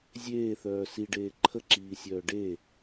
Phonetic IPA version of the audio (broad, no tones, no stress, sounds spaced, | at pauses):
zʲ eː θ œː s i ɖ eː ǃʰ ə ǁ iː sʲ œː ɖ e